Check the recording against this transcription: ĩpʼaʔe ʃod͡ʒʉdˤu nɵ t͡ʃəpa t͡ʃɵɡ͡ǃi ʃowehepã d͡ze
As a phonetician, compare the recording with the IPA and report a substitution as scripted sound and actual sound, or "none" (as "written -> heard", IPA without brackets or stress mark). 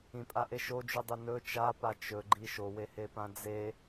ə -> a